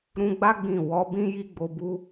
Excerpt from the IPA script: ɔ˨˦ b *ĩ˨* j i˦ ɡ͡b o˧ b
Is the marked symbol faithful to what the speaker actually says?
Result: no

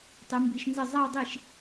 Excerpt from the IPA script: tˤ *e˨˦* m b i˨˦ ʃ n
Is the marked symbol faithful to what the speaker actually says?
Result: no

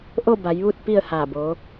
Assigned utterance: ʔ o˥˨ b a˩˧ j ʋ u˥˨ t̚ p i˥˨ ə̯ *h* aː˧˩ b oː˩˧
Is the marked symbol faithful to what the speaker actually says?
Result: yes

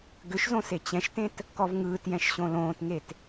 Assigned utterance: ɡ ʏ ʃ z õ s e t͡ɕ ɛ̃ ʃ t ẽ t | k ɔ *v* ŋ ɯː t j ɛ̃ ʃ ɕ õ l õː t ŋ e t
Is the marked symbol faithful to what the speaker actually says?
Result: yes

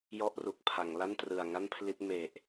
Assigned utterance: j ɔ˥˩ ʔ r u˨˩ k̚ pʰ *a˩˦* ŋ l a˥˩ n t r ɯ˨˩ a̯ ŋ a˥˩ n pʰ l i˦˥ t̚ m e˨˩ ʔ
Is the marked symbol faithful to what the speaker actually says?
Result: yes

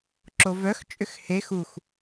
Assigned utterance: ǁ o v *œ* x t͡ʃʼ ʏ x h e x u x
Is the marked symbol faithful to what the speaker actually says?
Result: yes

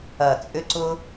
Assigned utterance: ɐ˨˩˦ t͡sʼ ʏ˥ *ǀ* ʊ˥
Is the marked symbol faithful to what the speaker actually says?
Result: yes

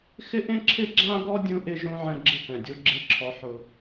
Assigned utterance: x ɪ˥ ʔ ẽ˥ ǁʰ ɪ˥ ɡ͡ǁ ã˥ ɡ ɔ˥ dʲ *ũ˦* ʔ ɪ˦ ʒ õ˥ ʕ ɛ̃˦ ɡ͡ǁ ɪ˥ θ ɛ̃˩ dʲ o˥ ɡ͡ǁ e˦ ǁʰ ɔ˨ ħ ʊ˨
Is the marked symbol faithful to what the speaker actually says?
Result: yes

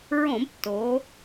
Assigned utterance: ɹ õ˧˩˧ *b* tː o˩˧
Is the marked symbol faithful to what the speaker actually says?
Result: yes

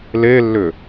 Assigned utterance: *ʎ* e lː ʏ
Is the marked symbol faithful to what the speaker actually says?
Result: no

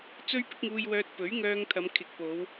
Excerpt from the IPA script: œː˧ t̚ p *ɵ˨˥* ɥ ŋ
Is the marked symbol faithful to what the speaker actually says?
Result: yes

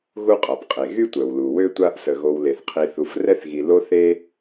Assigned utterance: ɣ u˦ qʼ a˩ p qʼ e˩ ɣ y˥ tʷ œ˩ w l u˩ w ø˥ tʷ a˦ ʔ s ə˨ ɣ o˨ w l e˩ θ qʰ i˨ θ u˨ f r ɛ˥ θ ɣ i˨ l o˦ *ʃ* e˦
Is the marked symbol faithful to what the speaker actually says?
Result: no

